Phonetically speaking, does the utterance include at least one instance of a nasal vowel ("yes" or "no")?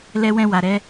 yes